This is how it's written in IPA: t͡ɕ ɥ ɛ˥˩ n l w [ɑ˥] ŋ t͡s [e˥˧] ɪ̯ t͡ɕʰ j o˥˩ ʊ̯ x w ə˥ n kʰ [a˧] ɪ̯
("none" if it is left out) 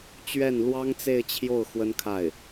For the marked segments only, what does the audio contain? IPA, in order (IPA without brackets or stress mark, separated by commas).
ɑ˥, e˥˧, a˥˩